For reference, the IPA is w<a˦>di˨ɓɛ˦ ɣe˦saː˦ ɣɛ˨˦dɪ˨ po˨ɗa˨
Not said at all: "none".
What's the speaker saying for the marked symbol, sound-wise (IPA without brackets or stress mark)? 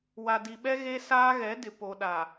a˨